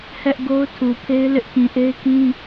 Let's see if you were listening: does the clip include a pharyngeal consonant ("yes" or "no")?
no